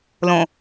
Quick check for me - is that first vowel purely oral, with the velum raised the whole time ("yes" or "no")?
no